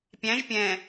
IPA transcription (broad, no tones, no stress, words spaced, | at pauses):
pʲæ̃ʒ pʲɛ̃